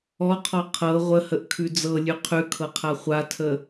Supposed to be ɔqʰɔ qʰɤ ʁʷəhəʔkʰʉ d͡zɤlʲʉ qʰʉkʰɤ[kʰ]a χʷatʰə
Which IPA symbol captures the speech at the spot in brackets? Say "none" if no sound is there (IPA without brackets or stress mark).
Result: qʰ